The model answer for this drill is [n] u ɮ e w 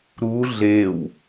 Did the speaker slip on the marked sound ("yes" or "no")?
yes